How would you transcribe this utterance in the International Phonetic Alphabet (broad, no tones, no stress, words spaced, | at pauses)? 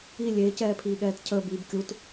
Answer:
i lʲeːcɛːpʰiːɠɛːt cʰəːb iːbkʲut